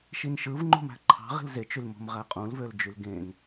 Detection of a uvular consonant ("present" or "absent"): present